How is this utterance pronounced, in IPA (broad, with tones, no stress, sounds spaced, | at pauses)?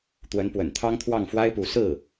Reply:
t̪ w ə˧˥ n p w ə̰˨˩ n t̪ʰ ɑ˥ ŋ t̪ʰ w ɑ˥˩ ŋ f w a˥ ɪ̯ p u˧˥ s ɹ̩˥˩